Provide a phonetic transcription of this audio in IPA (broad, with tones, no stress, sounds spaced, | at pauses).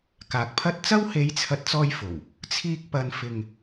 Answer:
k aː˨ k̚ pʰ ɐ˥ t̚ t͡s ɐ˥ w h e˨˥ j t͡sʰ ɐ˨˥ t̚ t͡s ɔː˧ j f o˨˩ w | t͡sʰ iː˧ k̚ p ɐ˨˧ n f ɪ˨ ŋ